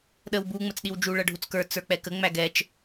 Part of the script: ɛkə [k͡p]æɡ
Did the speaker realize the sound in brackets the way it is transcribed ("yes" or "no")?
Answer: no